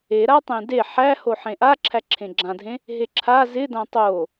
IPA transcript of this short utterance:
e ɾ a tˤ ẽ d e ħ æ h o ħ ẽ ʔ a ǁʰ æ ǁʰ ẽ ɡ͡ǁ ã dʱ ẽ | ɦ e ǁʰ a z ɪ d ã tˤ o

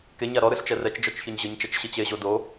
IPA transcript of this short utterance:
k e ɲ a ɾ ɔ ɾ ɨ ɬ t͡ʃ ɛ r ɛ t͡ʃ d͡ʒ ɔ t͡ʃ ç ɔ ɲ ʑ ɨ ɲ t͡ʃ ɐ t͡ʃ ɕ i t͡ɕ e ʑ o d o

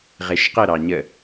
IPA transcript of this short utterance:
ʁ e ʃ q ə ɾ ɑ ɲ ə

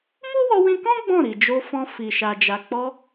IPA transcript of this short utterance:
m u˦ w ɔ˧ w ĩ˧ k ɔ̃˦ ɡ͡b ɔ̃˦˨ ɾ i˨ d͡ʒ o˧ f ɔ̃˧ f i˨ ʃ a˨ d͡ʒ a˨ k͡p ɔ˧

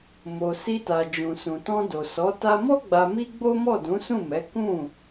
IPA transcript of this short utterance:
m o˨ s i˧ t a˨ d͡ʒ ũ˨ s ũ˨ t ɔ̃˧ d o˨ s ɔ˨˦ t a˧ m ɔ˦ ɡ͡b a˧ m i˦ ɡ͡b o˦ m ɔ˦˨ d ũ˨˦ s ũ˦˨ m ɛ˨˦ k ũ˦˨

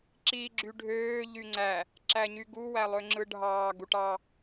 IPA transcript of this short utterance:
ǁ i ɡ͡ǁ y ɖʱ øː ʎ y ŋ͡ǀ æ | ǁ æ ɲ y ɡ u w æ lˠ ø ŋ͡ǁ ɯ ɖʱ ɑː ɡ u ʈ ɑ

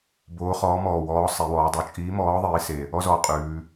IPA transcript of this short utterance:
b oː˨˥ χ ɔː˨˥ m ɔː˨˩ w ɔː˨˥ sˤ e˩˧ w ɔː˩˧ dˤ o˩˧ t͡ʃʼ iː˨˥ m ɔː˨˥ ðˤ iː˨˥ s e˨˩ | ɔ˥ z ɔ˨˥ qʼ ʉː˩˧

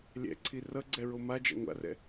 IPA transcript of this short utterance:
lʲ ɛ̰ ǀʰ i r ʌ ɡ͡ǀ ɛ ɹ o m a d͡ʒ a̰ ŋʷ a̰ r ɛ̰

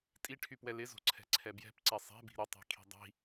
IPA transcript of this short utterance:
tʼ i ʈʰ y p w ɛ l ɪ z o̤ ǀʰ ɛ̤ ǀʰ ɛ b j ɛ̤ p ǀ ɛ sˤ ɛ̤ b i̤ ɾ ɪ tˤ i̤ kʰ i̤ dˤ i̤

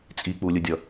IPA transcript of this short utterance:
t͡sʼ i k͡p u lʲ ɯ dʲ ʌ

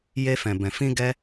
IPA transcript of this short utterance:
j e˧ f ɛ̃˨ b ɛ̃˨ f ĩ˧ ɡ ɛ˧

